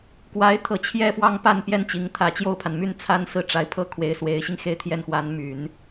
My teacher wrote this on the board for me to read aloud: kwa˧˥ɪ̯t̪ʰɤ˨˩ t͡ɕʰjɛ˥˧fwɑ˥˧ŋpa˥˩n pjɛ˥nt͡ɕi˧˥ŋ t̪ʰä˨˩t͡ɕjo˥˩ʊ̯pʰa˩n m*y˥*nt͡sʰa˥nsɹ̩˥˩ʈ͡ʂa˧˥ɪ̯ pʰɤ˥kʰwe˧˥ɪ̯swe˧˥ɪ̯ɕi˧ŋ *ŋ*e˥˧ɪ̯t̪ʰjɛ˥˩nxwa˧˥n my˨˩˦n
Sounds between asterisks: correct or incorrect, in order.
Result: incorrect, incorrect

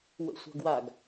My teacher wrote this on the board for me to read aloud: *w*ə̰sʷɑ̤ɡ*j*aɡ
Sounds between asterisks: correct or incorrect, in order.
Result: correct, incorrect

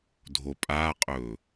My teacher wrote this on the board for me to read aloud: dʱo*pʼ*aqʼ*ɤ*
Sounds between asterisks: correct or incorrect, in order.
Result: correct, incorrect

